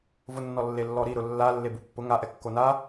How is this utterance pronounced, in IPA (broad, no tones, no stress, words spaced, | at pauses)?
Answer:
vʊnːɔ lːelːɔɾi ɾʊlːa lːebupːʊ ŋaʔɛ kːona